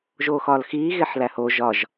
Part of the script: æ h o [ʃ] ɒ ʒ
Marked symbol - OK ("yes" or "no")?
no